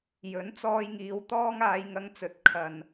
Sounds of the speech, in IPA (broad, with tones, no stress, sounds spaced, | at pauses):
j ɵ˨˥ n t͡s ɔː˧ j ŋ iː˨˧ w t̪ ɔː˥ ŋ aː˧ j ŋ ɐ˧ ŋ t͡s ɵ˨˥ t̚ kʰ ɐ˨ n